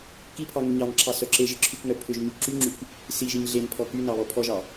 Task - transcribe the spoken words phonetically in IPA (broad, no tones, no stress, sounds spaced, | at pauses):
k i pʰ ɑ ŋ y ɲ ɑ ŋ ǁʰ ɑ s œ ǁ e ʒ e ǁʰ y k ŋ œ pʰ ʏ ʒ ɲ y ǁ y ŋ͡ǁ y k | s i ʒ i ɲ ɮ e n pʰ ɔ k y n ɑ β ɔ pʰ ɔ ʒ ɑ